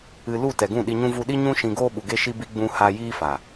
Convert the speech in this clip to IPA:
ɨ˧ l u˦˨ t ɛ˨ ɡ ũ˦˨ ɗ i˧ ɲ ũ˦ v u˧ ɗ i˦ ɲ ũ˦ ʃ ĩ˧ ɡ oː˦ ɓ u˨ ɡ e˧ ʃ i˧ b i˧ ɡ͡b ũ˧ h a˧ j iː˦ f a˨

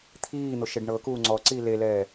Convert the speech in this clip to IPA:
t̪ʰ iː n̪ o ʃ e ɖ ɳ ɤ k uː ŋ͡ǀ ɔ ǀ iː l e l ɛː

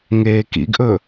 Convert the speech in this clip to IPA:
ŋ eː k ḭ ɡ ʔ ɵ

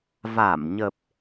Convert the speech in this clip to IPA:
v a˧˩ m ɲ ə˨˩ p̚

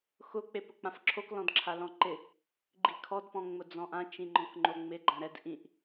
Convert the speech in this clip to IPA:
x ʊ k͡p e p ʊ k͡p ã f ǁʰ o k l ɔ̃ d ǁʰ a l ɔ̃ ǃ ɪ | ɡ͡ǃ i kʰ ɔ d p ɔ̃ ŋ͡m ʊ d͡z ɔ̃ ʔ ã t͡ʃ ĩ ŋ͡ǃ ɔ̃ k ŋ͡ǃ o ŋ͡m ɪ ɡ͡ǃ ã ɾ ɛ d ʔ ĩ ʔ

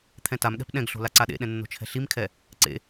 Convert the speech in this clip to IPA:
t̪ʰ ɛ̃ t a m ɠ ɛ̤ p ɗ ɛ̃ ɡ ɬ o̤ l a ǀ a ɗ ḛ ɗ ɛ̃ nː o̤ t͡ʃʰ ɛ̤ ɬ i m kʰ ɛ | ǀ ḛ

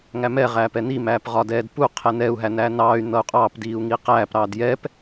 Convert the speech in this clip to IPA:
ŋ æ m ɛ ʁ æː p ɛ n i m æː p ʁ ɒ d ɛː d p u qʰ ɛ n ɛ u̯ ɦ æ n æː n ɑː y̯ n̪ ʌ u̯ qʼ ɑː p d iː u̯ ŋ i q æː p ɾ ɑː d j ɛ p

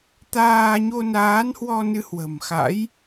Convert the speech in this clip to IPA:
t̪ aː˧ ɲ o˧ n aː˨˦ n h w ɔ˧ n ɨ˧ h w ə̤˨˩ m x a̰˧˥ j

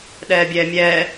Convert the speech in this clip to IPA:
ɗ ɛː bʲ ɛː mʲ ɛː

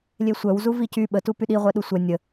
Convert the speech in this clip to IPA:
lʲ e sʷ œ w z u v i c y ɓ ə t u p y ɗ i ʁʷ ɛ ɗ u sʷ ɛ nʲ ə

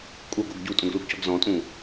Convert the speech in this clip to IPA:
kʼ u ɡ o ɡ ɟ u tʼ õ ɡ l u ɡ c ɔ ɡ z ɔ̃ tʼ ũ

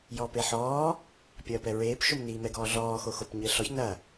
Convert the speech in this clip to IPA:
j ɔː p e ħ ɔː | pʲ ɐː p ɛ ɹ eː p ʃ o m n iː m ɛ ɡ ɔː ɮ ɔː x o x o p ɲ ɘː ɬ ɔ ç n ɐ

